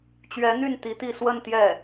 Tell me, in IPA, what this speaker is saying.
t͡ɕ ɥ ɛ˧˥ n̪ y˥˩ n t̪ i˧˥ t̪ i˥˧ s w ə˥˧ n t̪ j ɛ˥˩

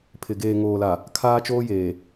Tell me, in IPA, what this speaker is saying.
pʰ ɪ˨ ɡ eː˨ ŋ oː˨ l a˨ | kʰ aː˦ t͡ʃ oː˦ j eː˨

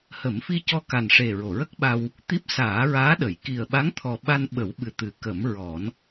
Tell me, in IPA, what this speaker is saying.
h ə˨˩˦ m f i˧ c ɔ˧ k a˨˩ n ʂ e˨˩ ɹ o˨˩˨ ɹ ə˦˥ k̚ ɓ a˧ w | t̪ i˦˥ p̚ s aː˨˩˦ ɹ aː˧˥ ɗ ə˨˩˨ j k i˨˩ ə̯ ɓ a˧˥ ŋ t̪ʰ ɔ˨˩ ɓ a˧ n ɓ ə˨˩˦ w ɓ ɨ˨˩ t̪ ɨ˨˩˨ k ə˨˩˦ m ɹ ɔ˨˩˦ n

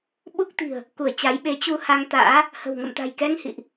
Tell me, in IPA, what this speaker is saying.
ɓ u˦˥ k̚ t̪ i̤˨˩ ə̯ | k u˧˩ ə̯ t͡ɕ a˨˦ j ɓ e˨˦ t͡ɕ u˧ h a˧ ŋ t̪ a̰ː˧˥ | h ə̤˨˩ w ŋ ə̰˧˨ m t̪ a̤˨˩ j k ɛ˧ ŋ h ḭ˧˨ ʔ

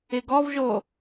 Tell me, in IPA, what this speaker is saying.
ɪ ɡ ɔ v ʒ o

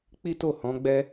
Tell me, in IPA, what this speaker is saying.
k͡p i˦ t o˦˨ h ɔ̃˨˦ ɡ͡b ɛ˦

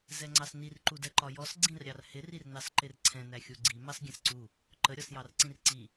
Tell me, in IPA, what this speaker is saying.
z ɛ ŋ͡ǀ ɑ s n i r ǃ u d ɛ ǃ ɒ j ɔ s ɡ͡ǀ ĩ r ɾʲ ɑ r h ɪ r i r n ɑ s ǃ ɪ r ǀʰ ɛ̃ n æ xʲ u ɡ͡ǀ i m ɑ s ɡʲ ɛ̃ s ǀ u | ǃ ə ɾʲ ɒ s j ɑ r ǀ ĩ r ǀ i

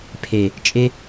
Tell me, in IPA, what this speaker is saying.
pʰ e˨ | t͡ʃʼ e˧

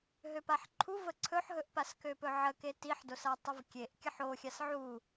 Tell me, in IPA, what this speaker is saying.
ɦ ø p a ħ ǃʰ u v ə ǀʰ ɵ ħ ɦ ɵ ʔ p a s k ø p ɵ ʕ ə k e t i ħ d o s a tˤ ə v kʲ e ʔ kʲ ə ħ o xʲ a s ʕ u

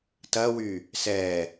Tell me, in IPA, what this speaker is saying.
t ɐ w y | s ɛ

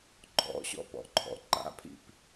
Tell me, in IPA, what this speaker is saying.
ǃʰ ɔ̰ ɕ ɔ̰ p ɔ̰ ǃʰ ɔ̰ ǃ a̰ pʰ ḭ p

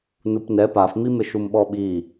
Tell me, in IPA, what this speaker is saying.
n u p n ɛ p a f m i m ɪ ʃ u m ɓ ɔ ɓ i

